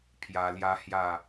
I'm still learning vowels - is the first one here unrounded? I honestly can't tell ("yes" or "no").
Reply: yes